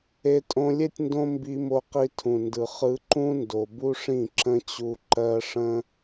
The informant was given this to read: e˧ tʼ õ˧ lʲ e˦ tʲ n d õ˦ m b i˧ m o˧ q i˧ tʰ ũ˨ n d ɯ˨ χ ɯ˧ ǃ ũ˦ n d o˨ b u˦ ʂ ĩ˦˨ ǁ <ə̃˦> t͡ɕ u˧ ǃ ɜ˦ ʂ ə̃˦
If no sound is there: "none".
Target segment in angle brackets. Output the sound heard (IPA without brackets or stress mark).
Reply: ə̃˦